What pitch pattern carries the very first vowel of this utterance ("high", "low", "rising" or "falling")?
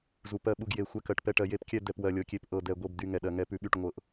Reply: low